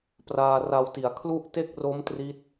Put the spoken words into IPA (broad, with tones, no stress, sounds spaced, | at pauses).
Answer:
p r aː˧ r a˧ w t i˩˦ a̯ kʰ l u˥˩ ʔ t e˥˩ k̚ r o˦˥ m t r i˦˥ t̚